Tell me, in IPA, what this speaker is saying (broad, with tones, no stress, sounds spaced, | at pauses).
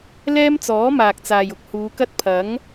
l ɛː˥ m t͡s ɔː˨˥ m aː˨ k̚ t͡s aː˨ j ʊ˧ k̚ h uː˨˧ k ɐ˥ t̚ pʰ ɐ˨˥ ŋ